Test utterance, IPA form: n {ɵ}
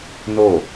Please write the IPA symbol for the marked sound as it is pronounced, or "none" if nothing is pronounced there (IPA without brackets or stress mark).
o